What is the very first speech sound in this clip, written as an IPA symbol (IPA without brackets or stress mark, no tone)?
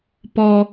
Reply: p